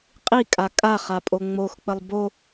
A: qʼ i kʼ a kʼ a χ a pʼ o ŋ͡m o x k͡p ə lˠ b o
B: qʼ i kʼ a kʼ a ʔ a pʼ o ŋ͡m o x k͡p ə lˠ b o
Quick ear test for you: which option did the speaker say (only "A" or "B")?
A